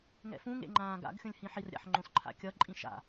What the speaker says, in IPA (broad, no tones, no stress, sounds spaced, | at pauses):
ŋ ɛ̰ f ũ ŋ ḛ ŋ͡ǃ ãː ɡ a̰ ɡ xʲ õ lʲ h ĩ ħ i r ɾʲ a̰ ħ ŋ͡ǃ õ s ǃʰ a̰ kʲ ʌ ǃʼ ĩ ʃ a̰